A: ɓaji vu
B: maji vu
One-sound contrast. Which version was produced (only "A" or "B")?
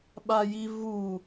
A